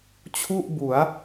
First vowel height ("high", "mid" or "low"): high